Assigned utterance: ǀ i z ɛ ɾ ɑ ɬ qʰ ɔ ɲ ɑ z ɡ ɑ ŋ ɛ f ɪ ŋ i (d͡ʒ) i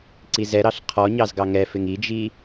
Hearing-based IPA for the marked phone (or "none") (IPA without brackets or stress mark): d͡ʒ